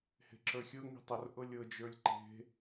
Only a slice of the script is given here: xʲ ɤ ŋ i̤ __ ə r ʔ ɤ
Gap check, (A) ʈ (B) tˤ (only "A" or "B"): B